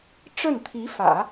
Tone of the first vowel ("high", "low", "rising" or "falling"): falling